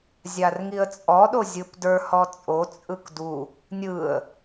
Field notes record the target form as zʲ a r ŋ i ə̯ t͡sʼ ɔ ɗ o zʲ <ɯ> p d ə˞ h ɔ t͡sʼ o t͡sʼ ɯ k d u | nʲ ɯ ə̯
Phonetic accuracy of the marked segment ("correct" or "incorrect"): correct